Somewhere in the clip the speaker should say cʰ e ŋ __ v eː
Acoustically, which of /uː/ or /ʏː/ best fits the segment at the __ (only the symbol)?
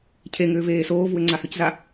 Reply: ʏː